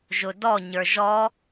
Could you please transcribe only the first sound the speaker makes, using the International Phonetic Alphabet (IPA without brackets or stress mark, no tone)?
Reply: ʒ